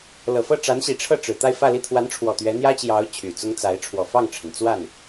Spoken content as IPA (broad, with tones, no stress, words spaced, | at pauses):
lɤ˨˩fɤ˥˩ʈ͡ʂa˧˥nɕi˨˩ ʈ͡ʂʰɤ˥˩ʈ͡ʂɻ̩˨˩t̪a˥˧ɪ̯ fä˥˧li˥˩ t̪ʰwa˧˥nʈ͡ʂʰwɔ˨˩ t̪ɥɛ˧˥n̪jä˥t͡ɕjɑ˧˥ʊ̯ t͡ɕʰy˨˩t͡sʊ˥ŋt͡sa˧˥ɪ̯ ʈ͡ʂʰwɔ˨˩fɑ˥˩ŋʈ͡ʂʰə˩n t͡swa˥˩n